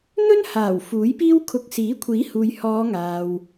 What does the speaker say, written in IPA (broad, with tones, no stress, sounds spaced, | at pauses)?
n̪ ɵ˥ n h aː˨˩ w f uː˨˥ j p iː˥ w kʰ ʊ˧ k̚ s iː˨˥ kʷʰ iː˨˥ h uː˨ j h ɔː˨˧ ŋ aː˨ w